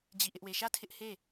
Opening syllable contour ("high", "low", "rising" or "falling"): falling